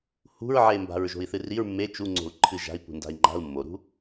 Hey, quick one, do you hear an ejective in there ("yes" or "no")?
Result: no